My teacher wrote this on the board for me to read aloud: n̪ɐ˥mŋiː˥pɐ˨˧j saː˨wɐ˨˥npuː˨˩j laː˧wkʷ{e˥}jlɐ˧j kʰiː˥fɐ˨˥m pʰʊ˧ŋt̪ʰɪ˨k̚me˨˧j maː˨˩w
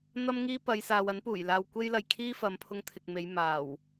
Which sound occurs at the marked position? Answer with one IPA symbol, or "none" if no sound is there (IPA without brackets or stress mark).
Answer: e˥